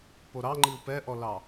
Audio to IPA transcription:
p o ɾ ɑ ŋ͡ǃ i u̯ p ɛ ʔ ɔ l ɑ

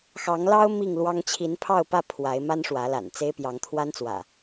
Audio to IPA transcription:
x ɑ˨˦ ŋ l ɑ˦ ʊ̯ m i˥˨ ŋ l w ɑ˦ ŋ t͡ɕʰ i˨˦ n pʰ ɑ˥˨ ʊ̯ p ä˥˨ pʰ w a˨˦ ɪ̯ m a˦ n ʂ w ä˨˦ l a̰˨˩ n t͡s e˦ ɪ̯ p j ɑ˨˦ ŋ t̪ʰ w a˦ n t͡s w ä̰˨˩

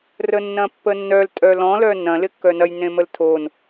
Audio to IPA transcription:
r ə nː ɐ̃ pː ə nː œ l tʼ œ l ɔ̃ l œ n ɐ̃ l ɪ kː œ n ɐ j n ẽ m ə l tʰ o n

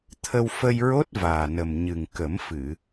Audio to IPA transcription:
t̪ʰ ə˧ w f ə˧ j ɹ o˦˥ t̚ v aː˨˩ n ə˨˩ m ɲ ɨ˨˩ ŋ k ə˨˩˦ m f ɨ˨˩˨

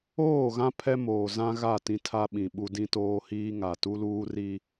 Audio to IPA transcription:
oː˦˨ ɣ ã˦ pʰ ɛ˦ m oː˨ z ã˦ ɣ a˦˨ t ĩ˦ tʰ a˦ ɓ ĩ˨ ɓ u˦ d ĩ˦ t oː˦ h iː˦ ŋ a˨ t u˦ l uː˦ r i˦

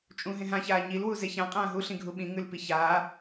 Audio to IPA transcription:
t͡ʃʼ ũ ɦ ẽ ɦ ã ç aː ɲ i l w u z e ç ã qʼ ãː ɦ u ɬ ĩ ɡʱ u ɓ ĩ ŋ ʉ l p i ç aː

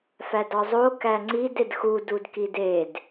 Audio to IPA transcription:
f æ d ɒ zˤ o k æ ŋ͡ǀ i d e d x u d u d k i d e d

